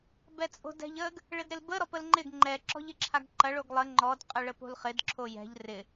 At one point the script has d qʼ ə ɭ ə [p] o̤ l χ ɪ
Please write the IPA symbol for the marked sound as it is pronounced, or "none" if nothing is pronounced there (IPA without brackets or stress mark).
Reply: p